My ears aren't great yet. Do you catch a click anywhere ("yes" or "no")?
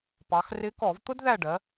no